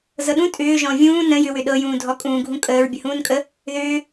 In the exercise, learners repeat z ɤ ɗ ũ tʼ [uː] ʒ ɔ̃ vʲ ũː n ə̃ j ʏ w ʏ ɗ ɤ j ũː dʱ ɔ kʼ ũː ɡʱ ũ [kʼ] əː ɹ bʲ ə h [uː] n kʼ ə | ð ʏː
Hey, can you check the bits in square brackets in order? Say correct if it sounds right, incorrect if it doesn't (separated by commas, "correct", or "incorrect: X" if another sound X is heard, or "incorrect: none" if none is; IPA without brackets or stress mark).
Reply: incorrect: ʏː, correct, incorrect: ũː